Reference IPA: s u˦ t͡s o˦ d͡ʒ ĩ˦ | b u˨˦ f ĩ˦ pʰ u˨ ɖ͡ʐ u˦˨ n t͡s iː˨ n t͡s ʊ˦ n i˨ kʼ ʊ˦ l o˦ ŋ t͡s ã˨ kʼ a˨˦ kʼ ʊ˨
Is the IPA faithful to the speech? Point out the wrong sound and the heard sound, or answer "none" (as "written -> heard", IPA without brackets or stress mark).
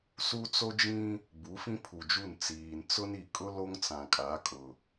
ɖ͡ʐ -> d͡ʒ